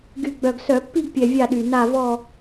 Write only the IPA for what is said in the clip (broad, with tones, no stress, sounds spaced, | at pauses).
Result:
ɡ y˨˩ ɡ͡b œ˨˩ ɡ s œ˧˩˧ pː i˥˨ ɡ pʲ ɛ˨˩ vʲ a˥˨ ɗ y˨˩ n a˥˨ v ɔ˥˨